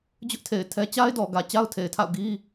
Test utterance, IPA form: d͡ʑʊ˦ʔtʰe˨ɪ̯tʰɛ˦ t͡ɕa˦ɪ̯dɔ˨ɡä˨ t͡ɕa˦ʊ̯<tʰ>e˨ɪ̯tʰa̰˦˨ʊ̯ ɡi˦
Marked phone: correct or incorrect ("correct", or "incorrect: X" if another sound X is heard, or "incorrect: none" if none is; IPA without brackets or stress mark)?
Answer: correct